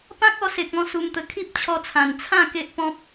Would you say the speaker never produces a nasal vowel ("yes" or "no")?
no